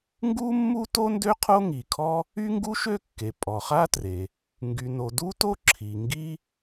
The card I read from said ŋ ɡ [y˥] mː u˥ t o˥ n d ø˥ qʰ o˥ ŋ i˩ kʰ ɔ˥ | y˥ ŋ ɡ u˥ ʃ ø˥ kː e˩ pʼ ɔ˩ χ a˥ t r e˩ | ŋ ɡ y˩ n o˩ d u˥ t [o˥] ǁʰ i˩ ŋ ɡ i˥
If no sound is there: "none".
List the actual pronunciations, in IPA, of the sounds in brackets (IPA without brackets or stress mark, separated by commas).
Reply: u˥, o˥